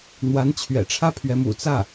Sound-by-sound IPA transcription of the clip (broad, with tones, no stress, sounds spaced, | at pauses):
n̪ w a˧˥ n t͡ɕʰ ɥ ɛ̰˨˩ ʈ͡ʂʰ ä˥ pʰ ɥ ɛ˧˥ m ṵ˨˩ t͡s ä˥˩